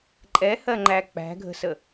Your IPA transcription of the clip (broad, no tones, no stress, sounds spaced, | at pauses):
ǃʼ ɛ h ɜ ŋ͡ǃ æ k͡p æ̤ ɡʱ ə̤ s ə